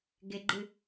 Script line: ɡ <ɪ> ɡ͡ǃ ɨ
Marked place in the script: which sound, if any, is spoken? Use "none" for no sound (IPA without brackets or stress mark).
ɪ